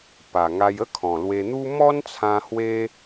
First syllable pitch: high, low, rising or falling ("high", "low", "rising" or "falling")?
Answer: low